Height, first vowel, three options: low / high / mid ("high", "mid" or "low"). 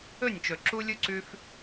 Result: mid